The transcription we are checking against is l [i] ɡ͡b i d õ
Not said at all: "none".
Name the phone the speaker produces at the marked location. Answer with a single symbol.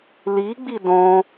i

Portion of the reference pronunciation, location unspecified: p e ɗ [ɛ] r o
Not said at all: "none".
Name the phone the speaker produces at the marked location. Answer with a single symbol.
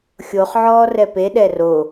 ɛ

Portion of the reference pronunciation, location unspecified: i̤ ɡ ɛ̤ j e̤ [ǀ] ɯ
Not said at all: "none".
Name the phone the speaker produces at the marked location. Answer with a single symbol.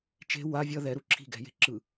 ǁ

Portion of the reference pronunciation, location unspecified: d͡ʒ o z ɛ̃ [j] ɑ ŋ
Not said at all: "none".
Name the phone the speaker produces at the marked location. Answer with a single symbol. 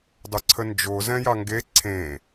j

